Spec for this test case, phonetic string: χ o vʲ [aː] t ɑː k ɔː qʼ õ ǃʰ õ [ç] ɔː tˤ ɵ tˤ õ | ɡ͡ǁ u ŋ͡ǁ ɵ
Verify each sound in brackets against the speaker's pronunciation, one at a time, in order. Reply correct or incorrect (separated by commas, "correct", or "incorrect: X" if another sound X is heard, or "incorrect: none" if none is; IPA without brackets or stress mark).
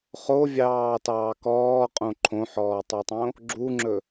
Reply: incorrect: ɑː, incorrect: ħ